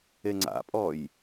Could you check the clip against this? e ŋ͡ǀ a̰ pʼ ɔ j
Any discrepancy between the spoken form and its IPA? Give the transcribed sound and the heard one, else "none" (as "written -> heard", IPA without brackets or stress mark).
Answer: none